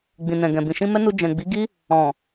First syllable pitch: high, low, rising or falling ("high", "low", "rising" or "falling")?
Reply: low